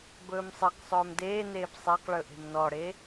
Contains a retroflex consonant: yes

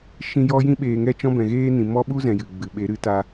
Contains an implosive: yes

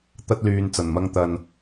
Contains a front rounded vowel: yes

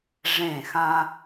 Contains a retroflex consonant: yes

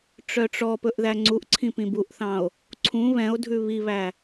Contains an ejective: no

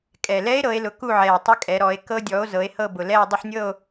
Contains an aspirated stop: no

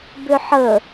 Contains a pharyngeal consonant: yes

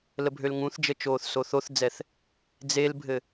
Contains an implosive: no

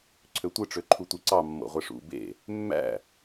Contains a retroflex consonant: yes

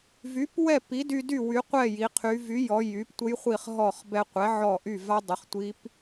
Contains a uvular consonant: yes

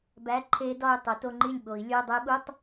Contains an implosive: yes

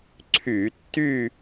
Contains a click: yes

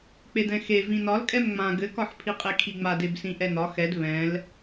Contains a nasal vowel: yes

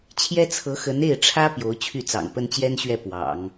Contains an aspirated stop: yes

